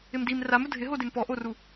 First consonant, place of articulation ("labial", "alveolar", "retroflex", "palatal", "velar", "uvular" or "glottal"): labial